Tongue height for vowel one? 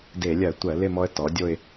mid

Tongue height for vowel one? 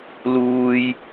high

